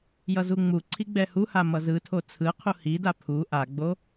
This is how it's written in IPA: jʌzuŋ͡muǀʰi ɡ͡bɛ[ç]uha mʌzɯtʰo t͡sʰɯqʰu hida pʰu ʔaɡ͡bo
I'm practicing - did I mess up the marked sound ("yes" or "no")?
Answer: yes